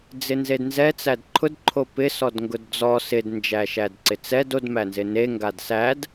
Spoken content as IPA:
d͡z ɪ n z e d n z ɛ t͡s æ d ǃʰ ʊ d ǃʰ o p ɪ s ɔ d ŋ ɡ ʊ d d͡z ɔ s ɪ d n d͡ʒ æ ʃ æ d ǀ ɪ t͡s ɛ d o d m æ n z ɪ n e ŋ ɡ a d s æ d

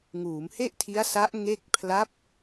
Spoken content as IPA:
ŋ uː˩˦ m h e˥˩ ʔ tʰ i˦˥ a̯ s a˦˥ ʔ ŋ e˥˩ k̚ pʰ l a˦˥ p̚

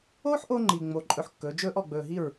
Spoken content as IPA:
oː˦ ħ ʔ o˧ ŋ͡ǃ i˨ ŋ͡m o˨ ǃʼ ɵ˧ ħ kː ɵː˨˦ d͡ʒ ɵː˦ ʔ ɔ˨ ɡ͡b ɵː˨ ɦ i˦˨ ɹ

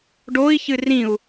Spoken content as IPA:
ɖ o i̯ ç ɨ r ĩ u̯

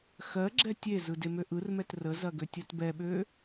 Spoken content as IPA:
x ɜ ɡ͡ǁ ɛ tʲ e z ɯ d e m ø ʔ ɯ r m ɛ t r ə z ɐ ɡ ø tʲ ɜ t b ɛ ɓ ø

